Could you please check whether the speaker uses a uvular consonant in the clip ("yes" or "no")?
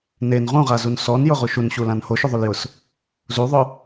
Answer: yes